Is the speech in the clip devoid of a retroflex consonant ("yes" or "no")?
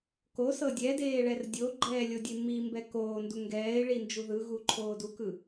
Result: no